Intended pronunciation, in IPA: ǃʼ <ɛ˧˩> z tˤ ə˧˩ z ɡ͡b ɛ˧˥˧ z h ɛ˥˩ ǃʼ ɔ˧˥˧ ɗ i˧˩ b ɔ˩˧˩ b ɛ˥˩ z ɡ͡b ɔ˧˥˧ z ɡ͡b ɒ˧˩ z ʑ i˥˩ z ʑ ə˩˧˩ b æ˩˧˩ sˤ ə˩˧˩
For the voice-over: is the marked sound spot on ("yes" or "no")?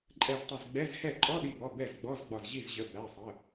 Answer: yes